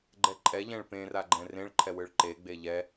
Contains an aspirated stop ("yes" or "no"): yes